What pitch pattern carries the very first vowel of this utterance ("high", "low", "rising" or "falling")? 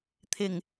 low